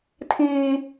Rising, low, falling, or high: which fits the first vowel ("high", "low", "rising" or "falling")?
high